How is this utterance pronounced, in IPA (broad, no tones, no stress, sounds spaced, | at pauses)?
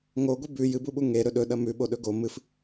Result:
ŋ o ɡʷ i b ʉ j ɨ b u ɓ u ŋ e ɾ ɵ ɗ ɵ ɗ ɐ m ʉ ɓ o ɗ ɵ ɡ o m ɨ f